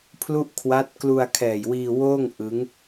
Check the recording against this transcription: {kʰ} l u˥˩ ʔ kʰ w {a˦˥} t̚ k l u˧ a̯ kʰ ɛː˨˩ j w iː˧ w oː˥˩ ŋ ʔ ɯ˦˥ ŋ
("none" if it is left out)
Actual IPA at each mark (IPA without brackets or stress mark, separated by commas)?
pʰ, a˦˥